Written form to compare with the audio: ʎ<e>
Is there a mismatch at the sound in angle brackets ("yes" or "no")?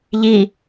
yes